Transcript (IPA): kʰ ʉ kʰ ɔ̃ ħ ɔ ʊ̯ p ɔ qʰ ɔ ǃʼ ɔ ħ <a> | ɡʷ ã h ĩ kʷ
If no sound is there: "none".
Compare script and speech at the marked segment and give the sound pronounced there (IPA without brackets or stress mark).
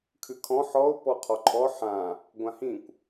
ã